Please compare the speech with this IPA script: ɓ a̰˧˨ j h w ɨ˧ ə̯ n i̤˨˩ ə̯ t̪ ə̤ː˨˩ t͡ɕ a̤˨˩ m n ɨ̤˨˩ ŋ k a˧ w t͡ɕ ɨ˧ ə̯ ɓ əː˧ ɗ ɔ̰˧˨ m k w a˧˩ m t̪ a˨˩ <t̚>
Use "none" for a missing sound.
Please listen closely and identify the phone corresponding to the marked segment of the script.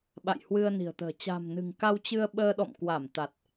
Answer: t̚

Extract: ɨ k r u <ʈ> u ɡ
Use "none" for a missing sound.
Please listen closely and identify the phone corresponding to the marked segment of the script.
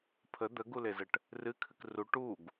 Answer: ʈ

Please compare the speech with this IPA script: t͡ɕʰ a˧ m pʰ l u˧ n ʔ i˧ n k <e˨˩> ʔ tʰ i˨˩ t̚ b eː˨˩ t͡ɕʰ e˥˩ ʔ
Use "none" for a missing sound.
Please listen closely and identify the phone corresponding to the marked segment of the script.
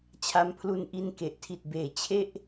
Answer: e˨˩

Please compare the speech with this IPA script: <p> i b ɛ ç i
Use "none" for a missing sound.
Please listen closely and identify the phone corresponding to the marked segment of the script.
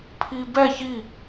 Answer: pʰ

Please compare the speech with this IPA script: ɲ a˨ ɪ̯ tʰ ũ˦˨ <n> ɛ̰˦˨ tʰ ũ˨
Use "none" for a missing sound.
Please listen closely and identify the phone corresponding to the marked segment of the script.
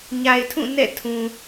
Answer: n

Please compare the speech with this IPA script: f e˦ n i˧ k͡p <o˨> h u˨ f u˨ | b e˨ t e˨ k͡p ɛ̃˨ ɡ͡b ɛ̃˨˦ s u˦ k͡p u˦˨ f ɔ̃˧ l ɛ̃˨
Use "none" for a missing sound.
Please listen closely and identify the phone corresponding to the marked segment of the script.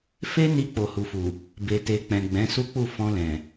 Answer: o˨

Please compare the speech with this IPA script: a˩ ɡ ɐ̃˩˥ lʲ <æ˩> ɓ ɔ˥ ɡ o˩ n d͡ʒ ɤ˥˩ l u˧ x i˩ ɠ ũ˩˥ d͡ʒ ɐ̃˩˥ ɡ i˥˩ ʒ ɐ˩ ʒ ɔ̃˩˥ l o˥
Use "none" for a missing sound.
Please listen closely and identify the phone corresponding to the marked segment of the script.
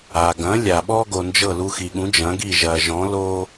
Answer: a˩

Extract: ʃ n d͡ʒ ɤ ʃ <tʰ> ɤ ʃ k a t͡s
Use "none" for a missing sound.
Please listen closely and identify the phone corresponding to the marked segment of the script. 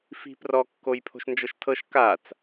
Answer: tʰ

